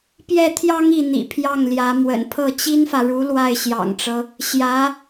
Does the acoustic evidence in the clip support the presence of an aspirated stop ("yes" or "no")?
yes